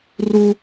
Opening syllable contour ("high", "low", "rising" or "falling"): high